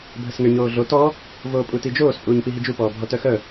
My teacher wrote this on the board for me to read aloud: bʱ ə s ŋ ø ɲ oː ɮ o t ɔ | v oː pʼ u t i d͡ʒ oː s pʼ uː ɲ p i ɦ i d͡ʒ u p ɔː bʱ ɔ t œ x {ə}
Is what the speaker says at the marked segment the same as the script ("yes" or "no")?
no